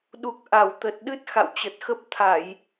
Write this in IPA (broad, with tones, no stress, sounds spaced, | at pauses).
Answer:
ɗ u˨˩ k̚ ʔ a˧˩ w t̪ ə˨˩ t̚ ɗ ɨ˦˥ t̚ x a̰˧˨ w t͡ɕ ə˨˩ t̚ x ə˦˥ p̚ t̪ʰ a˧˩˨ j